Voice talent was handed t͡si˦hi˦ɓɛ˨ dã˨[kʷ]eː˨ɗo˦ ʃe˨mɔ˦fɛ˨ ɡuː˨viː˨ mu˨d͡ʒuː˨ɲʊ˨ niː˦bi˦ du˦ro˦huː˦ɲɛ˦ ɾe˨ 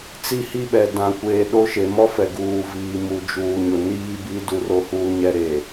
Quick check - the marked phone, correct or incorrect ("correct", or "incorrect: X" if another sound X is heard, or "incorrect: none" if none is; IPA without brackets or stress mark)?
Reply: correct